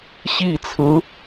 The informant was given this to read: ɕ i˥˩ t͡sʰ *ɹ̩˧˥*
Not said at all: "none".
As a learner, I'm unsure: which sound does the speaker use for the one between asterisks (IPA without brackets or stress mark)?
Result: ɹ̩˧˥